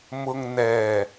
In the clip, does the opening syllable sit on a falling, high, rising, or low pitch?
low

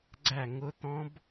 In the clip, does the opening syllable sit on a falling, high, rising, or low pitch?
falling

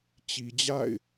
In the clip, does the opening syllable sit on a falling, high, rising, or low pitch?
low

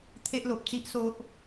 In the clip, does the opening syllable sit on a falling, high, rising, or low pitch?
high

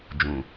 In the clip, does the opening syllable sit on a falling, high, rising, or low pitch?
low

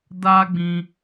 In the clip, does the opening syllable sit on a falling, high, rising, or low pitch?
high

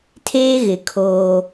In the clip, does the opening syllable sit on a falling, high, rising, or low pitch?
high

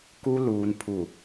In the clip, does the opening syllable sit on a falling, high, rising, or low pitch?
high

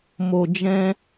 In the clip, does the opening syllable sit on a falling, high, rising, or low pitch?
low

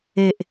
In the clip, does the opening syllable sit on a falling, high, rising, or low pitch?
low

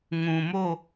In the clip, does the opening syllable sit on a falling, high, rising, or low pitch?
low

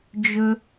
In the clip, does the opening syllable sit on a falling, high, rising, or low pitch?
high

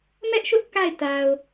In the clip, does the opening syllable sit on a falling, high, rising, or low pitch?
high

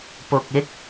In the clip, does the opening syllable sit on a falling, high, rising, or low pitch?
low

